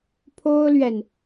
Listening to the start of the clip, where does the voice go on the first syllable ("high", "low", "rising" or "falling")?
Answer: high